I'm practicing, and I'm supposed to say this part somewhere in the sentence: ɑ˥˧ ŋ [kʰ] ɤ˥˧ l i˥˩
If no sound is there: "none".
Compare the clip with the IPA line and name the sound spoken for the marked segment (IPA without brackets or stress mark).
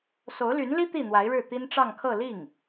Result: kʰ